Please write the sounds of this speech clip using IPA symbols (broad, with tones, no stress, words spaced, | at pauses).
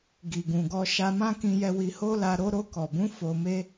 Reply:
ɡi˨ɡũ˨ɡɔ˧ ʃa˧mã˦kĩ˧jɛ˧ wi˧ho˦la˧ ɾo˧ɾo˧kɔ˨bũ˨˦ fo˧me˦